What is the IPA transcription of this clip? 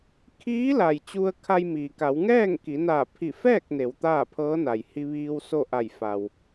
kʰ iː˧˥ l a˩ j t͡ɕ u˧ ə̯ kʰ a˧ j m iː˩ k a˩˧ w ŋ ɛː˥˨ ŋ k i˩˧ n aː˧˩ pʰ i˧˩ f ɛː˥˨ k̚ n e˩˧ w t̪ aː˥˨ pʰ ɤː˧˥ n a˩ j h i˧ ʋ iː˧ w s o˥˨ ʔ a˧˩ j f a˩ w

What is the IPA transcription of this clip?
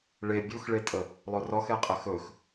ɭ e bʲ u x ɭ e tʼ ə | lˠ ɵ r ɔ x ɛ qʼ ə x ɵ x

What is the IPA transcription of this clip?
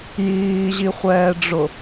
j iː ʑ i χʷ ɛː ɖ͡ʐ ʊ

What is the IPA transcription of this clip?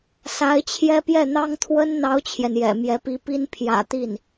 s a˧˥ ɪ̯ t͡ɕʰ j ɛ˥ p j ɛ˥˩ n̪ ɑ˥ ŋ t̪ʰ w ə˥ n n̪ ɑ˥ ʊ̯ t͡ɕʰ j ɛ˨ n j ɛ̰˨˩ m j ɛ˧˥ p i˧˥ p i˥ n pʰ j ä̰˨˩ t̪ i˥˩ n

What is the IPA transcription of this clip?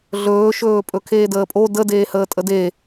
ɮ ɵː ʃ ɵː pʼ ɵ kʰ eː d əː pʼ o d ə d eː h əː tʼ ə d e

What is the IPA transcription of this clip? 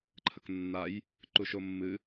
ǃʰ ə k nː a j | ǃ u ʃ o mː ɨ

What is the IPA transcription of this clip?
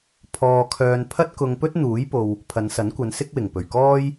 pʰ ɔː˧ kʰ œː˧ n pʰ ɐ˥ t̚ k ʊ˧ ŋ p ɵ˥ t̚ n̪ uː˨˥ j p o˨ w | pʰ ɐ˨˧ n s ɐ˨˥ n kʷ ɐ˨˧ n s ɪ˥ k̚ w ɪ˨˩ ŋ p ɵ˨˩ ɥ k ɔː˥ j

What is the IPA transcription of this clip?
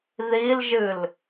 ð i l ʒ ɨ l

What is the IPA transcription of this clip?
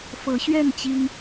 f ɤ˨˦ ɕ ɥ ɛ˥˨ n t͡ɕ i˦ ŋ

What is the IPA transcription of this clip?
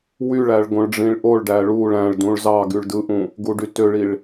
w y ɭ æ ɭ ɡ õ ɭ ɖ͡ʐ ĩ ɭ ʔ o ɭ ɖ æ ɭ u ɭ æ̃ ɭ d ũ ɭ z ɑ ɡ y ɭ d ɯ ʔ ũ | ɡ u ɖ y t ø ɭ i ɭ

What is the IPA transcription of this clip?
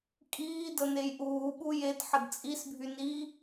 kʼ iː d ə n e j ʔ uː ɓ u j e d ħ ə d t͡sʼ i s bʱ y n i

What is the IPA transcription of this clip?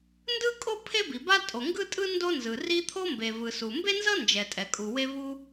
n d ɯ˥ kʼ o˥ pʰ e˥ b i˩ b a˥ tʼ o˩ ŋ ɡ ɯ˥ tʼ ɯ˥ n d o˥ n z ɯ˩ r i˥ t̪ʰ o˥ m b e˩ v ɯ˩ s u˩ m b e˥ n z ʌ˥ n d͡ʒ ɛ˩ tʼ ɛ˩ kʼ u˩ w e˥ v u˥

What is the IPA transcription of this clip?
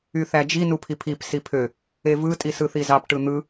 y θ æ d͡ʒ i n u pʰ i pʰ i p s i pʰ ø | e v ɯ tʼ i s ɯ θ i z ɑ p ʈ ɯ n̪ ɯ

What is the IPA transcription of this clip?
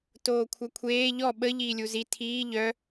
t oː kʷʰ œ kʷʰ eː ʎ ɔ ɓ ə ʎ iː lʲ u z i tʰ iː ʎ œ

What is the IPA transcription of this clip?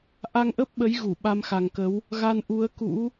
ʔ a˧ ŋ ʔ ə˦˥ p̚ ɓ ə˨˦ j ɣ u˧˩ ɓ a˧ m x a˨˩ ŋ k ə˨˦ w | ɣ a˧ n ʔ u˨˦ ə̯ k ṵ˧˥

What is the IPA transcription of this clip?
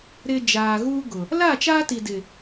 ɾ ɪ˨ d͡ʒ aː˨ ɣ uː˦ ɡ ʊ˨ | l a˦˨ t͡ʃ aː˦ t i˨ d ɪ˨

